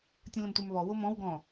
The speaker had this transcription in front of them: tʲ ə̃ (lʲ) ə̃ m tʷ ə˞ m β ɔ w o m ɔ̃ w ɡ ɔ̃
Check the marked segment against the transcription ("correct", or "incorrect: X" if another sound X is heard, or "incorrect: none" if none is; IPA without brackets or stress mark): incorrect: l